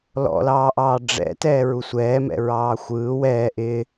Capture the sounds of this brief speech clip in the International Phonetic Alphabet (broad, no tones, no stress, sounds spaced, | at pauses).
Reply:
l ɔ̰ l ɑː ʔ ɑː ɖ͡ʐ ɛ̰ t ɛː ɹ u sʷ ɛː m ɛ̰ ɹ ɑː xʷ ɯː w ɛː ʔ ɪ